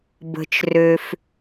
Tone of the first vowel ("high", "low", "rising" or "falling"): low